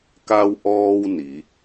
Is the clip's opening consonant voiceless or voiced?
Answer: voiceless